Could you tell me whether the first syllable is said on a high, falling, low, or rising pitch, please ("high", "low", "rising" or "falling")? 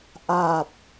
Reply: low